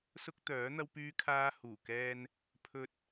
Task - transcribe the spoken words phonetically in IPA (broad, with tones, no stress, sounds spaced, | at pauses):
s ʊ˥ k̚ t̪ œː˨˥ n̪ ɐ˥ w p yː˥ kʰ aː˥ h uː˨˩ k ɛː˧ n | pʰ ɵ˧ t̚